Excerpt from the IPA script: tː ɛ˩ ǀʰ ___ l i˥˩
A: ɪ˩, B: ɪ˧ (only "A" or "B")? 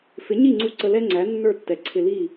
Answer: B